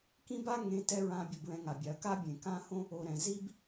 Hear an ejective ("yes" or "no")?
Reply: no